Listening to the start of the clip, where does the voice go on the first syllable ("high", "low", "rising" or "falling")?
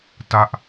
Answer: falling